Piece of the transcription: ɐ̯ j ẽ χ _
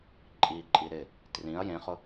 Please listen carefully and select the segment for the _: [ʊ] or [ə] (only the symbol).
ʊ